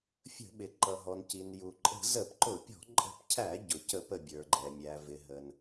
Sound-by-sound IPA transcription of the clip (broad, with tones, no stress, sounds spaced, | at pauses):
fʲ ə̤˧˩˧ ɓ ɪ˩ ǃ ʌ˩ ɦ ɔ˩ n c i˩ n j u˩ ǃʼ ə̤˧˩˧ z ə˧˩˧ p ǃ ʊ˧˩˧ pʲ ɔ̤˧˩˧ ǃʼ ə̤˧˩˧ p cʰ æ˧˩˧ ɟ ʊ˩ c ə˧˩˧ p ə˩ bʲ ə˞˩ ɡ͡ǃ ɛ˩ mʲ æ˩ v ɪ˩ ɦ ə˩ n